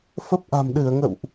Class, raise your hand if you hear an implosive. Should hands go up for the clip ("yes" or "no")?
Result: yes